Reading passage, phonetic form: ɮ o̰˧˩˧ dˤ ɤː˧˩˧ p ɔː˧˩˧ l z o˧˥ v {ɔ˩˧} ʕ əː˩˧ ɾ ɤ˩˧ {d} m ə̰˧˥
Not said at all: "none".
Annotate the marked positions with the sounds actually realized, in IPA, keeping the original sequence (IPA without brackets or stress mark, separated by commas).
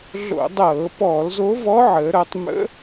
ɔ˧˥, tˤ